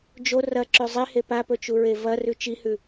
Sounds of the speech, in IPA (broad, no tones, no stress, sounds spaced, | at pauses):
d͡ʒ o r ɐ ǁ ʉ zˤ i h e p a p ɵ t͡ʃ u ɹ e v ɐ r ʉ t͡ʃ i h ʉ